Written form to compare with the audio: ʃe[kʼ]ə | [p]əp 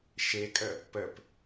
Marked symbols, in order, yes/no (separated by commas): yes, yes